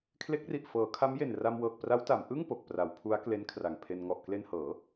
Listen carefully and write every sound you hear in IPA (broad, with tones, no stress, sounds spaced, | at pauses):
kʰ l e˦˥ k̚ r i˨˩ ʔ f ɤː˩˦ kʰ a˦˥ m j e˨˩ n r a˧ m w ɤː˨˩ k̚ p r a˦˥ w t a˩˦ m ʔ ɯ˥˩ ŋ p o˨˩ k̚ p r a˩˦ w pʰ u˦˥ a̯ k l e˦˥ n kʰ r a˨˩ ŋ pʰ e˧ n ŋ ɔ˨˩ ʔ k l e˧ n h ɤː˩˦